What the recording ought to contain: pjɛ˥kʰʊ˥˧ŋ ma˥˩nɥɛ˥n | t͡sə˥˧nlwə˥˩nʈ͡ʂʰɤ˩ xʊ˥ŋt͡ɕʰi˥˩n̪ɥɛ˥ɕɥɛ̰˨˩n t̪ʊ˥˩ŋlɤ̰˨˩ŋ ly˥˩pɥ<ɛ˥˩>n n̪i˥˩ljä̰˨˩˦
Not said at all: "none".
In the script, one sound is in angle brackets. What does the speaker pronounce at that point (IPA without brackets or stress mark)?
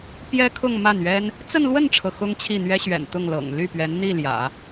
ɛ˧˥